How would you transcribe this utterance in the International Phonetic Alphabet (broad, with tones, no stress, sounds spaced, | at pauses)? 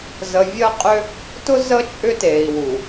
z ə˨ vʲ əː˦ qʼ ʏ˦ | t ʊ˦ z ə˦ t͡ʃʼ ʏ˦ t eː˨ i̯ w u˨